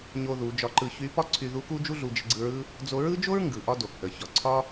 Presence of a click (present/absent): present